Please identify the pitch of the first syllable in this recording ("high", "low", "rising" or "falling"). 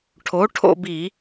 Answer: rising